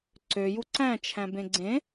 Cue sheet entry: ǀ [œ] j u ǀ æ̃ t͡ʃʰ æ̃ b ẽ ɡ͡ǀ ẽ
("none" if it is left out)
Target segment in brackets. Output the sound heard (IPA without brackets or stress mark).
ø